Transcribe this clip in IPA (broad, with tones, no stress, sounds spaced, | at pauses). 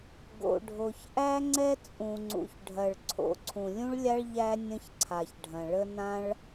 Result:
ɡ o̰˩ ɖʱ o˩ ç ʔ æ˥ ŋ͡ǀ ɛ˥ t͡sʼ ũ˩ ŋ͡ǀ ṵ˩ ç ɖʱ ɐ˩ ɭ ǀʰ o̰˩ ǀʰ ũ˩ lʲ ũ˥ ɭ lʲ a˥ ɭ ʎ æ˥ nʲ ə̃˥ ç ǀʰ a˩ ç ɖʱ ɐ̃˩ ɭ ə˥ n ã˥ ɭ